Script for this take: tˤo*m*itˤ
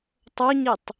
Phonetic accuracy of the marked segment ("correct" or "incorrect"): incorrect